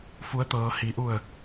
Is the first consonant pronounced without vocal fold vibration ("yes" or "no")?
yes